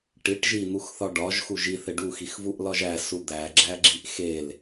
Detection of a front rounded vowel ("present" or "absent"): absent